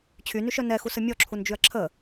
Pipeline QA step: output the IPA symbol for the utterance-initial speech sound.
t͡ɕʰ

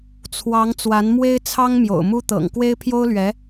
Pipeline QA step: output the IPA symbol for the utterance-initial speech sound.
t͡sʰ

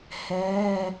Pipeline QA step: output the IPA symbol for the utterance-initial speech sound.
h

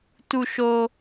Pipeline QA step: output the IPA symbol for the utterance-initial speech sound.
t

